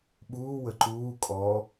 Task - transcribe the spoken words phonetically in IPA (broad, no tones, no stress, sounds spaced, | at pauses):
ɓ uː w ə ǃ uː kʼ ɔ